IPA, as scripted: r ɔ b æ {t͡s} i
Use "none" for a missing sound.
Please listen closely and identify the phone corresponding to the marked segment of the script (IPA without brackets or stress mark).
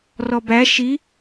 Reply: ʃ